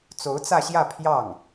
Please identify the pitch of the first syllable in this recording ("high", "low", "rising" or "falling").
rising